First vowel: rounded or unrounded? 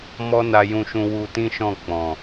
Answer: rounded